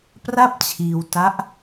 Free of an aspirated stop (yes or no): no